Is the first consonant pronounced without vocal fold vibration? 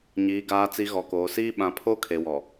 no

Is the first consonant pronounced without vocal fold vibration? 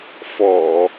yes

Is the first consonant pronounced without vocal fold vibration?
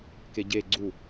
yes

